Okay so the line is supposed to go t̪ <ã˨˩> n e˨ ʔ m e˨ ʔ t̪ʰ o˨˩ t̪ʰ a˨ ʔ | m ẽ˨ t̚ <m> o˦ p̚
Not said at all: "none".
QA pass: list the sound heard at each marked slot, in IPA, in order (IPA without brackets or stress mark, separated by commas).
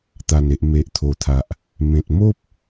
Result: a˨˩, m